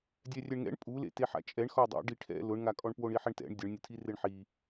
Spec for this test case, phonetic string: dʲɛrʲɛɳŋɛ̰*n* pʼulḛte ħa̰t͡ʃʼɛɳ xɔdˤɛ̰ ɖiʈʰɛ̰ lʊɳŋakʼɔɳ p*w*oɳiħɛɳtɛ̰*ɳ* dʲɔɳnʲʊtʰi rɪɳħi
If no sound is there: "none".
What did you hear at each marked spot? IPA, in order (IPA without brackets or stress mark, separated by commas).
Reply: ɳ, w, ɳ